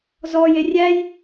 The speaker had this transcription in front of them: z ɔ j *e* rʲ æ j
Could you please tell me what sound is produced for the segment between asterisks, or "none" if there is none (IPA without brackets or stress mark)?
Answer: e